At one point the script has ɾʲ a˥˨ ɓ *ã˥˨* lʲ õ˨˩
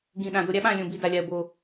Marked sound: correct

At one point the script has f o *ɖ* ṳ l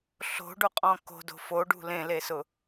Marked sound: correct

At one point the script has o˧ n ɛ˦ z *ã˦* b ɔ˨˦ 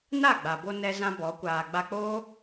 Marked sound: correct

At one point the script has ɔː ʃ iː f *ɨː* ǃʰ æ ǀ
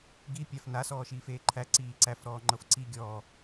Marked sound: incorrect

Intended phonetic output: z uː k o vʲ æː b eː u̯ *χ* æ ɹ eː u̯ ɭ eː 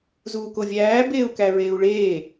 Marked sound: incorrect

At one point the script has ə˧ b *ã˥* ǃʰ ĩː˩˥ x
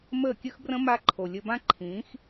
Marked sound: correct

